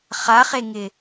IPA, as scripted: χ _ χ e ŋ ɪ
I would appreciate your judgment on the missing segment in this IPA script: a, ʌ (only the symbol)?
a